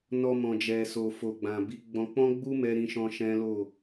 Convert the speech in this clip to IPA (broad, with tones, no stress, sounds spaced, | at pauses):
n ɔ˨ m ɔ̃˨ d͡ʒ ɛ˨ s o˨ f o˨ ɡ͡b ã˨ b i˨˦ ɡ͡b ɔ̃˧ k͡p ɔ̃˦ ɡ͡b u˦ m ɛ˧ ɾ ĩ˦ ʃ ɔ̃˦ ʃ ɛ̃˦ l o˦˨